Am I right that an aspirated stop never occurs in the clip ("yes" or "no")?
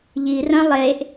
yes